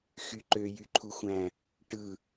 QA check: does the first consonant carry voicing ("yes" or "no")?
no